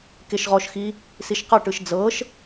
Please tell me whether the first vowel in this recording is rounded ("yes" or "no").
no